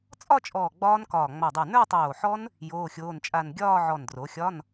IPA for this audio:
t͡sʼɒ˥˧t͡ʃʼɔː˧˩ ɡ͡bɒː˦˥nkɒː˧˩ ŋ͡ma˧˩dˤo˧˩ nə˞˥˧tˤoː˧˩ħɔ˦˥n | joː˧˥˧xʲoː˧˥˧nt͡ʃʼa˥˧n ɡʲɒː˥˧ʕɔ˧˩ndro˩˥xʲɒ˧˥˧n

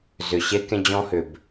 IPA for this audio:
zʏ˩ ɕe˥kẽ˥d͡ʑɔ̃˥hʏ˩b

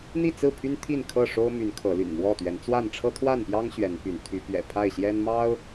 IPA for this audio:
n̪i˥˨t͡sɹ̩˥˨pʰy˦n t̪ʰi˥˨nkʰɤ˥˨ʂo˦ʊ̯my˨˦n kʰɤ˨˦ly̰˨˩nmwɔ˥˨t̪ɥɛ˨˦n t͡swa˥˨n ʈ͡ʂʰɤ˦t̪ʰwa˥˨npjɑ˦ŋ ɕɥɛ˨˦npy˨˦n t̪ʰy˨˦pɥɛ̰˨˩ pʰa˥˨ɪ̯ɕjɛ˦nmɑ˦ʊ̯

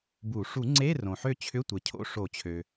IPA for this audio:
bu˨˩˦ ʂu˨˩˦ŋ͡ǀe˧˥˧ rõ˩ ħø˦˨t͡ɕʰʏ˧˥˧tʷe˩cʰo̰˧˥˧ ʂo˨˩˦t͡ɕʰø˩

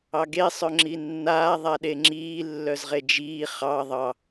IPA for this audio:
ɑɡe sˤœŋ͡ǁinːaː ðˤaɗeŋ͡ǁiː lːœzʁed͡ʒiː χɑ ðˤɑ

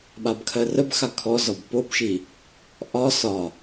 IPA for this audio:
ɓabkʰɜrəbxa kʰɔzɒb pobʃi | ʔɒ sɒ

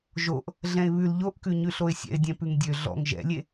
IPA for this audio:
ʒoʔ | ɮɛ̃ɪ̯βʉl ʎoʔkʉ ɲʉɬoɪ̯sʲɛ̰ɪ̯dʲɛ̃ pʉŋdʲø ɮɔ̰ŋ ʒɛ̰lʲe

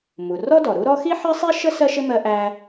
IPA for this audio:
mu˩rɔ˥dɔ˩ ɾu˥ɾɔ˥ xi˥ħɜ˥sˤi˥ʃə˥ sɜ˥ʃɪ˥ mɜ˥ʔæ˥

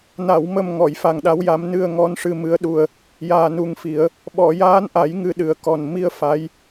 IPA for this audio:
na˨˩˨wmə˨˩m ŋɔ˨˩˨jfa˨˩ŋɗa˧˥wja˧˥m nɨ˧ə̯ŋɔ˧˥n ʂɨ˧mɨ˧˥ə̯ɗu˧ə̯ | jaː˨˩nu˨˩ŋfi˨˩˦ə̯ | ɓɔ˨˩˨jaː˧˥nʔa˨˩˦j ŋɨ˧ɗɨ˨˩ə̯kɔ˨˩n mi˧ə̯ fa˧˥j

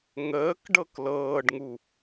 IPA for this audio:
ŋəːk ɖɤklɤːɖŋu

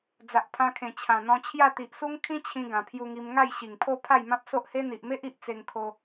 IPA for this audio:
d͡za˨ʔpʰã˧kʰẽ˨˩ t͡ɕʰã˨˩n̪ɔ̃˧t͡ɕʰja˥˧ t̪i˨ʔsu˦ŋ kʰĩ˦t͡ɕʰĩ˧ ɡã˨˩pʰju˧ŋi˧m ŋa˥˧jɕi˨˩ŋpʰo˥˧ pʰa˥˧jmã˦p̚so˦ʔhe˦ n̪i˨ʔme˦ʔi˨ʔ t͡se˧ŋkʰo˧

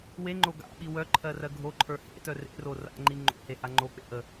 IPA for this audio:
weŋ͡ǃo ɡa̰ɓi wœǃʰɜrɜ ɡʱoǃʰə˞ hḛtœ rḛro ra̰ŋ͡ǃi ŋ͡ǃo̰heha ŋ͡ǃok͡pḛ ʔə

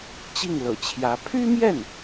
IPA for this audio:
t͡ɕi˥˩ŋlɤ̰˨˩t͡ɕʰjä˧˥ pʰy˥mjɛ˥˩n

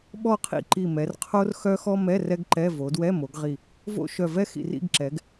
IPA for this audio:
ɓɔ˥˧qʰḭ˥˧ ǃi˧˩mɛ˩˧r qʰo˥rxœ˥xɔ˥ mɛ˧˥˧ rɛ˥ɡǃɛ˧˥˧ vo˩˧dwɛ˧˥˧mo˩˧ɡʁi˧˩ | vo̰˥ʃœ˧˩vɛ˥ xḭ˧˩rḭ˥˧ɡǁɛ˩˧ɡ

